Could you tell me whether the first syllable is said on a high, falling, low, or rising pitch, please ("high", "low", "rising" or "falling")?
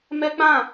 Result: high